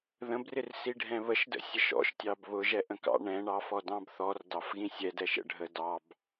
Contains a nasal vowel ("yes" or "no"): yes